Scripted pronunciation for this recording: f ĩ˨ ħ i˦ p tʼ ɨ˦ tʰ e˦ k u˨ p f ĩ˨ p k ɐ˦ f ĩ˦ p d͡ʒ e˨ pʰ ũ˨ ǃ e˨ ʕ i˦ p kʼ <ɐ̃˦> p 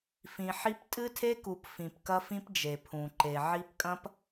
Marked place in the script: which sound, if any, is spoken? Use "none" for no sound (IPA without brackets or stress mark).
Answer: ɐ̃˦